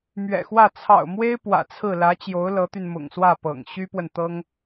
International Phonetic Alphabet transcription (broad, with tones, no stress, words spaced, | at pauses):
mɥɛ̰˨˩xwä˥˩ t͡sʰɑ̰˨˩ʊ̯mwe˥ɪ̯ pwä̰˨˩t͡sʰɹ̩˥˩ lä˧˥t͡ɕjo˧˥ʊ̯ lɤ˧˥t̪y˧n mʊ̰˨˩ŋswä˥˩pɤ̰˨˩ŋ ɕy˥pwə˨n t̪ɤ˥ŋ